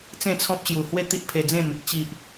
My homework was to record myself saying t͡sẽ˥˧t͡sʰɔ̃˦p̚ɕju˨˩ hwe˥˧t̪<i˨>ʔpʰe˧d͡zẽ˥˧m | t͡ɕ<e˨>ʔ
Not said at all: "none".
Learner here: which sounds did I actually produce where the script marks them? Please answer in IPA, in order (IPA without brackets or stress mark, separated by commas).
i˦, i˨